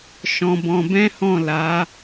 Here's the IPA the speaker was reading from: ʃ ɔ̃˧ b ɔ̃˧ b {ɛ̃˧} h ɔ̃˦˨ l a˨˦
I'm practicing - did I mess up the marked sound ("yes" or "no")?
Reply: yes